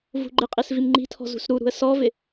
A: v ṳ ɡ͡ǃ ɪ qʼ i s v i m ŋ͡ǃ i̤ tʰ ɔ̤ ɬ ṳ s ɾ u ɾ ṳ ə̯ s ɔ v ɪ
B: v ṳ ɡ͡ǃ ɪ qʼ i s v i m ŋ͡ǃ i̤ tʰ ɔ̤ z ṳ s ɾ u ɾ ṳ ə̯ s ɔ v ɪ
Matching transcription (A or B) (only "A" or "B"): B